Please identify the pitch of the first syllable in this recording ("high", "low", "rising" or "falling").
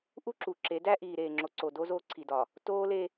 high